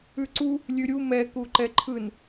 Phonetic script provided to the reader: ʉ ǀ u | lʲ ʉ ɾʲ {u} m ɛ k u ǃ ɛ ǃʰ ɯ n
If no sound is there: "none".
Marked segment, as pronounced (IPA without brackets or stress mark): u